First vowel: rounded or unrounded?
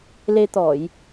unrounded